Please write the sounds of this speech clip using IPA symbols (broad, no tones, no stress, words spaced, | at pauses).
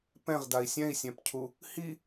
pɛ̃ʁdai̯ sʲɛ̃i̯sʲɛ̃pcʰu | hi